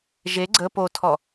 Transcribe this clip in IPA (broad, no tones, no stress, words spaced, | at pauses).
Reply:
ʒe ɡ͡ǀə potʰɔ